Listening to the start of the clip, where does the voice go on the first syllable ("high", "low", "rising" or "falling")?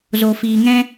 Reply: low